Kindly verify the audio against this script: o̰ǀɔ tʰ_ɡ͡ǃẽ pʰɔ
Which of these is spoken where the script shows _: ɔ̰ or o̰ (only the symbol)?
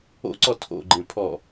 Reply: o̰